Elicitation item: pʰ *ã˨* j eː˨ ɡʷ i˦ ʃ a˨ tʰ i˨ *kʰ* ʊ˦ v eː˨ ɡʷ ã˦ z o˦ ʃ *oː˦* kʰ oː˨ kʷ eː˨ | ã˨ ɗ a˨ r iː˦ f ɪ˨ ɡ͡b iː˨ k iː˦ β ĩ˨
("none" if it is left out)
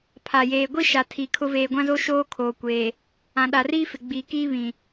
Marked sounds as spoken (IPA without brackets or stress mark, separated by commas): a˨, kʰ, oː˦